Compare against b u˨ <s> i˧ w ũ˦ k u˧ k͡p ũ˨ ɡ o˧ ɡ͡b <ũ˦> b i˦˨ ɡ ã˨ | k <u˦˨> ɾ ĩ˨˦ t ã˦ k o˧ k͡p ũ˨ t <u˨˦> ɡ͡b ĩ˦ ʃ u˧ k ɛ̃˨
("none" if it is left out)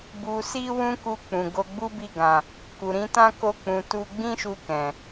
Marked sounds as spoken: s, u˦, u˨, u˧

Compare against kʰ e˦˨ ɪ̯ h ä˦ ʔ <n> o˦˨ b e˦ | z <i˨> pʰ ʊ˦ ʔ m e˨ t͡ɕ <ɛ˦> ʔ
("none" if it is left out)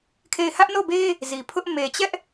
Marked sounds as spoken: n, i˨, ɛ˦

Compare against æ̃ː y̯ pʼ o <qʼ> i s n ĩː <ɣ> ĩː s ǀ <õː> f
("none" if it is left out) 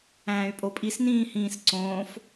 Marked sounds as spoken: pʼ, h, õː

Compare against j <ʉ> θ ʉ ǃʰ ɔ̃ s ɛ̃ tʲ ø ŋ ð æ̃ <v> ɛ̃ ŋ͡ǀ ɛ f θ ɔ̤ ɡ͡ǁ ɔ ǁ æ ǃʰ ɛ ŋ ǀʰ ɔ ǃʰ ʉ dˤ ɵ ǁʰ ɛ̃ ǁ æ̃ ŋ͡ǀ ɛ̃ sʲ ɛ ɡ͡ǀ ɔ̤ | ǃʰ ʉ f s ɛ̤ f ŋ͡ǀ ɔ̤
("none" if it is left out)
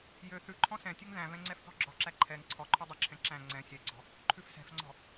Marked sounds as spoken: ø, v

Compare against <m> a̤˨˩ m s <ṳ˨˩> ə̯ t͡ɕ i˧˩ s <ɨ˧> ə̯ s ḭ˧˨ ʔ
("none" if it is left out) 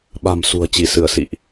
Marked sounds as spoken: ɓ, ṳ˨˩, ɨ˧˩

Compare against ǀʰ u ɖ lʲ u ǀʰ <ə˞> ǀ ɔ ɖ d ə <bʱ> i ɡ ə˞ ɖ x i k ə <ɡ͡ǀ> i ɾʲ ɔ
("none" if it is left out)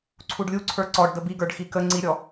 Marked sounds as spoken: ə˞, b, ŋ͡ǀ

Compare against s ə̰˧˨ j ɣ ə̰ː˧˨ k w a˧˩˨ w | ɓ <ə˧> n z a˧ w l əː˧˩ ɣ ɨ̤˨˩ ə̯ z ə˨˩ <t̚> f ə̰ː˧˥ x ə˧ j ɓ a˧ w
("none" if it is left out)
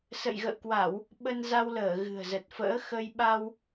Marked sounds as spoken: ə˧, t̚

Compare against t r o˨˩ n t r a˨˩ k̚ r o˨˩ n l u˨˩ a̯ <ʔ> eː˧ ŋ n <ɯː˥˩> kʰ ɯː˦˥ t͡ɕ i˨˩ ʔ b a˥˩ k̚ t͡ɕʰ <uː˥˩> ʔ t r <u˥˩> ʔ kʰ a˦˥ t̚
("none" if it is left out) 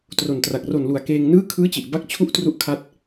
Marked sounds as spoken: k, ɯː˥˩, u˥˩, u˥˩

